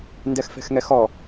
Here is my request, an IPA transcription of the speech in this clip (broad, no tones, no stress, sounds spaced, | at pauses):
n d ɛ x f ɛ̤ x ŋ ɛ x ɔ